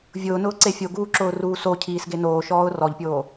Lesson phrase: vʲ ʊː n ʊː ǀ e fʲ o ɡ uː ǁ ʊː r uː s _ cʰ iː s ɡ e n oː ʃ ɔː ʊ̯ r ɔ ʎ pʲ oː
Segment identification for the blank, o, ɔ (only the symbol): o